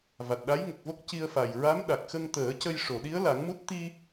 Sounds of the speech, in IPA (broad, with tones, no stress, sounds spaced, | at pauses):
v a˨˩ t̚ ɗ a˧˥ j ŋ ə˨˩ k̚ v o˦˥ k̚ c i˧ ə̯ f a˨˩ j ɹ a˧˥ m ɗ a˨˩ k̚ x ə˧ ŋ t̪ əː˨˩˦ c ə˧ j ʂ o˨˩˨ ɗ i˧˥ ə̯ l a˨˩˦ ŋ m u˦˥ t̚ t̪ i˧